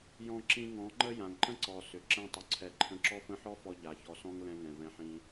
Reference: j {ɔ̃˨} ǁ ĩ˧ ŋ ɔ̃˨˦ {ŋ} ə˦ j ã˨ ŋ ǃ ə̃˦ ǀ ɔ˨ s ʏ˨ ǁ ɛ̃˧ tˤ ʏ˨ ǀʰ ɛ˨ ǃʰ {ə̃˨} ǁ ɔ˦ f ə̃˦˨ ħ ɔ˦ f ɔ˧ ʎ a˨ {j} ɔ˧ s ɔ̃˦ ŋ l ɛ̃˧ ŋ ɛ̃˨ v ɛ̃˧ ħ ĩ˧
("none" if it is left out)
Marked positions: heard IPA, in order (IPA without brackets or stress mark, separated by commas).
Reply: ɔ̃˧, ŋ͡ǃ, ə̃˧, ç